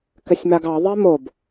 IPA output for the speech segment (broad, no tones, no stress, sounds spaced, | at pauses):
k ɘ sʲ m a ɡ ɑ ðˤ e m o b